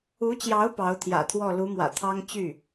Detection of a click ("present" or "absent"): absent